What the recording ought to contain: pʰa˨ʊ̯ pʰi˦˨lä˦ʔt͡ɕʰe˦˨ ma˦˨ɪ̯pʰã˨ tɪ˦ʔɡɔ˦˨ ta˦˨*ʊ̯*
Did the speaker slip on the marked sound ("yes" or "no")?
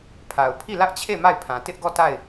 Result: yes